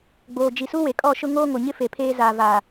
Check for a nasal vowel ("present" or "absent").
absent